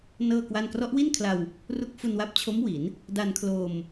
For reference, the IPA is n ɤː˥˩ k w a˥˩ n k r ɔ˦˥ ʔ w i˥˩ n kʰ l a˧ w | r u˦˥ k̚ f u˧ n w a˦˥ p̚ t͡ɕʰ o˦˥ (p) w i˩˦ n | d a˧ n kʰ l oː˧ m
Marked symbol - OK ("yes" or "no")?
no